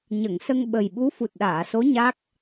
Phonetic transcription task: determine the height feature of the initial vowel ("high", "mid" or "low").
mid